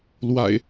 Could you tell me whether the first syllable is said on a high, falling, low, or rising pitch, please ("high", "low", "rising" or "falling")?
low